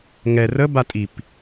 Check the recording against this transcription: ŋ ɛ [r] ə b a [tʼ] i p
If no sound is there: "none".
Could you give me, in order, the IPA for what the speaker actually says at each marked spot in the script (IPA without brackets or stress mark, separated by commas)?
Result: r, tʼ